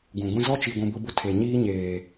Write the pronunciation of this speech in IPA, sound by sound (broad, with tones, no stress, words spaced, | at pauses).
ɡũ˨ɡʷĩ˦ zɔ˦t͡ʃi˨ɡʷũ˨ bʊ˦bʊ˦ tʰe˨ɲiː˦ ɲeː˨